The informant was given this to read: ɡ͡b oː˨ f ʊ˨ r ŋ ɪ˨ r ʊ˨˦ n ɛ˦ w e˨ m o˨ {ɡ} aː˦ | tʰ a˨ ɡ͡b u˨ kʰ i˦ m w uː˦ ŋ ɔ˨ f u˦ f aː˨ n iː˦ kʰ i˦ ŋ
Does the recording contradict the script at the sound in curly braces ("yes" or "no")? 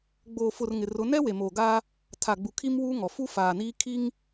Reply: no